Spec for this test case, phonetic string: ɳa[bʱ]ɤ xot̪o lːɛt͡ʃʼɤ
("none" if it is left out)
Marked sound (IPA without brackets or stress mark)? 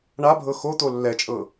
bʱ